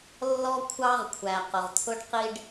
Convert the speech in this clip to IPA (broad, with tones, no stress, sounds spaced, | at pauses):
lː ɔ˥ kʷʰ ɑ˥ ʁ kʷʰ æ˩ q ʊ˩ ʁ t̪ʰ ʊ˥ ɖ q i˥ ɖ